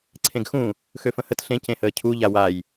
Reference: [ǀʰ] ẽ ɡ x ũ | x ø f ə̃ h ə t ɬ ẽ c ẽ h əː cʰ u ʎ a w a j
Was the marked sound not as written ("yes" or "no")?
no